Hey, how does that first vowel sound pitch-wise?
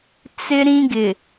high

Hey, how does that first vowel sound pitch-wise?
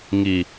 low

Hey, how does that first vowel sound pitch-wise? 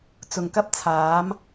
low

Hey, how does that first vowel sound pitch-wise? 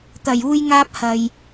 low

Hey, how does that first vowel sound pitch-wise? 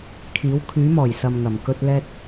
rising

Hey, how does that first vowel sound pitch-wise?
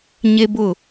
high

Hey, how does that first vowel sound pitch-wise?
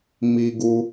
high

